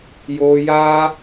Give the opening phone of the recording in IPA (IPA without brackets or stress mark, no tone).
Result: j